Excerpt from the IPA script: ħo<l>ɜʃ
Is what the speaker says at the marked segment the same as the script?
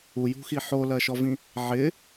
yes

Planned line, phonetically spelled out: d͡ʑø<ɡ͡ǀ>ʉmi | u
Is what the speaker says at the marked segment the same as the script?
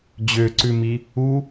no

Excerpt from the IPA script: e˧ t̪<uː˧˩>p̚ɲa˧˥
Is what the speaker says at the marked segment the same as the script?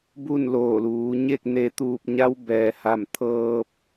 yes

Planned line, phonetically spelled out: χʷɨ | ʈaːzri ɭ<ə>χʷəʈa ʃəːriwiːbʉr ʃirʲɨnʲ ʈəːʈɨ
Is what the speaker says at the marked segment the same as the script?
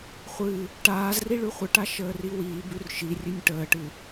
no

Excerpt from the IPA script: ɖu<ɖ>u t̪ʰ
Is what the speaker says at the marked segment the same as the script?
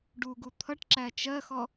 no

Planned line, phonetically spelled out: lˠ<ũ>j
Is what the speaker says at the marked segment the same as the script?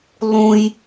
yes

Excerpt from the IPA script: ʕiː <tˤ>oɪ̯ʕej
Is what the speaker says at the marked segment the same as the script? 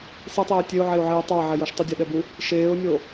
yes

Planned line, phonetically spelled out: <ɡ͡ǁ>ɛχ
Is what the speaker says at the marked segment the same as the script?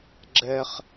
yes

